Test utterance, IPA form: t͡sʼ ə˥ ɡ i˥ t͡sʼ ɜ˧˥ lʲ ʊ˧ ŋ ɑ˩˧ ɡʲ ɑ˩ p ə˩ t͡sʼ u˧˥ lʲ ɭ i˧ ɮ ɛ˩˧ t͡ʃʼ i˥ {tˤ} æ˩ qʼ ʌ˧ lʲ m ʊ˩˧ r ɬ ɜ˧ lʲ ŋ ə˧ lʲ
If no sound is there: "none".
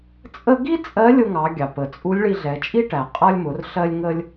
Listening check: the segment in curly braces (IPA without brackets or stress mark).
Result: ʈ